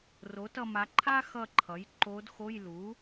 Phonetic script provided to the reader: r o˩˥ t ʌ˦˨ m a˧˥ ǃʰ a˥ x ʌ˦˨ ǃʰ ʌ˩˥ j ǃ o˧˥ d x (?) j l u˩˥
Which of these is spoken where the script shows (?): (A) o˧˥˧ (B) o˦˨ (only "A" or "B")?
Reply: A